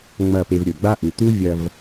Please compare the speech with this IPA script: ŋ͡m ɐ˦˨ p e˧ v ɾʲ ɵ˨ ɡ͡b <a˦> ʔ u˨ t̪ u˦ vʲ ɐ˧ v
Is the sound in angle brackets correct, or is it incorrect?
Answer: correct